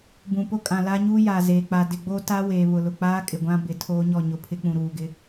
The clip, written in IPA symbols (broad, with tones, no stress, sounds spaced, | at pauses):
b ũ˨ p o˦ kʼ ã˨ l a˦ ɲ uː˦ j aː˨ z eː˨ k͡p a˨ d ɪ˨ ɡ͡b o˦ t a˦ w eː˨ β ʊ˨ l ʊ˨ k͡p aː˦ kʼ ɪ˨ ɡʷ ã˦ b ɪ˨ tʰ oː˦ ɲ ɔ˦˨ ɲ ʊ˨ pʰ ɪ˦ k͡p ũ˨ ɾ uː˨ ɡ ɪ˦